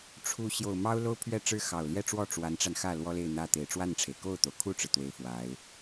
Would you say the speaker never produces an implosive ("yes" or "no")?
yes